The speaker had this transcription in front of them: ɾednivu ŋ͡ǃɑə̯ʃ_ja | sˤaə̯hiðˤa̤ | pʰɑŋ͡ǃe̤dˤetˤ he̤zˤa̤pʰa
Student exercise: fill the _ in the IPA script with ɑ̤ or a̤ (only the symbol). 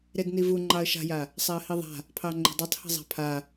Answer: a̤